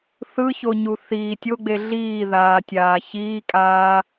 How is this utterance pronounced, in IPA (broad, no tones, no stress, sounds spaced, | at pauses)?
θ ɯ ç o ɲ u θ i tʲ o ɡ͡b e ɮ iː ð aː tʲ aː ç iː kʼ aː